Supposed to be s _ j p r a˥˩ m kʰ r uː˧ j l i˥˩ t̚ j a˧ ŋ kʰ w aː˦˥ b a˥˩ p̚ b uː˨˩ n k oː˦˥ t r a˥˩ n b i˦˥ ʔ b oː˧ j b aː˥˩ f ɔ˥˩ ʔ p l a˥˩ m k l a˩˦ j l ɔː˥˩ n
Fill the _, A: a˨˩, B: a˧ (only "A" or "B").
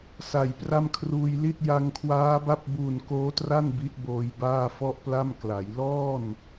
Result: A